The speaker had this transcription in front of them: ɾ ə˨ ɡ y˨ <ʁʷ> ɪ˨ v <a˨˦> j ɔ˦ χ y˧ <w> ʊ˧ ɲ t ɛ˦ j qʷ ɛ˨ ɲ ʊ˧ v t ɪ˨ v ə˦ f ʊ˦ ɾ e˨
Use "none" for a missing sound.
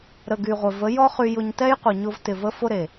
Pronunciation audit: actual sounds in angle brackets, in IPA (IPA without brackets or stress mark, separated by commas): ʁʷ, ə˨˦, j